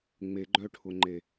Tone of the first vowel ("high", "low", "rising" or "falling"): low